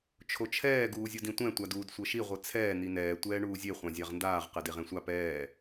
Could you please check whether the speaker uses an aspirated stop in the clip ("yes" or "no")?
yes